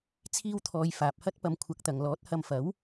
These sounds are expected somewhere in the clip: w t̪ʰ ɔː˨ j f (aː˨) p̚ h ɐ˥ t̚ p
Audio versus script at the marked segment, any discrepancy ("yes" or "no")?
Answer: no